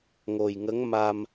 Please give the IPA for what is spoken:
ŋo˨˩jŋə˧˥ŋ ma˧m

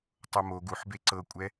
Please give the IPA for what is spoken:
tˤomo ɡuħbe ǀɤkʷʼɛ

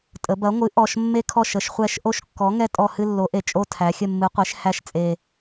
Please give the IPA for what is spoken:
tʼə˩˧bɐ˨˥ŋʷɨ˨˥ ʔɔ˨˩ʃ mːe˦kʰɔ˦˨ʃ ə˩˧ʃχʷɛ˦˨ʃ ʔo˦˨ʃkːɔ˨˥ŋɛ˦ tʼɔ˦˨hɨ˦ lːo˨˥ʔe˨˩ t͡ʃʼo˦ tʰæ˩˧xʲə˦˨mːɨ˨˥qʷe˨˥ʃ hæ˦˨ʃt͡sʼe˨˩

